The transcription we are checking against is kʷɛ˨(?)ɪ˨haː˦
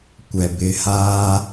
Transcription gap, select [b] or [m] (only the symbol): b